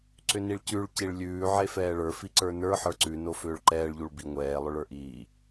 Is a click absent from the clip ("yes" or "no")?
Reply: no